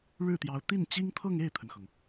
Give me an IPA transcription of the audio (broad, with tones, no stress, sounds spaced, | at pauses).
ɻ ɻ̩˥˩ t̪ j ɑ˧˥ ʊ̯ t̪ i˥˩ n t͡ɕ i˥ ŋ t̪ʰ ɤ˥˧ ŋ e˥˩ ɪ̯ t̪ʰ ə˩ n x ɤ˩ ŋ